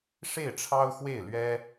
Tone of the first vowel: falling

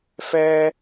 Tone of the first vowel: high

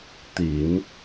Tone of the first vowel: low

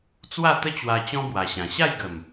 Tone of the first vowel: falling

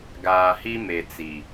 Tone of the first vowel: low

